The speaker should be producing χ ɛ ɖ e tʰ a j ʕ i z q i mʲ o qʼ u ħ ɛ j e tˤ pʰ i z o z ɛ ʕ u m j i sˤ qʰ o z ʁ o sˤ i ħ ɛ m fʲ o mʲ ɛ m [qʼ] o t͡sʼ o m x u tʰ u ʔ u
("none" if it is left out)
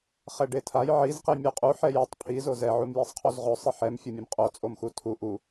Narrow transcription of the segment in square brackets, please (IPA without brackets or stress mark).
qʼ